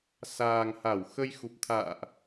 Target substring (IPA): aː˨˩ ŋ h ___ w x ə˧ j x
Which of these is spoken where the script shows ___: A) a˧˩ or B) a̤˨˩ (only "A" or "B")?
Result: A